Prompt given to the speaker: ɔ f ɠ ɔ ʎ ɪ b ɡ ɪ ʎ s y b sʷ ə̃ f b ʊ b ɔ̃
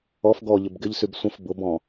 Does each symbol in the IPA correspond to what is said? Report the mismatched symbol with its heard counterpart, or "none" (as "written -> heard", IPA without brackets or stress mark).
ɠ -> ɡ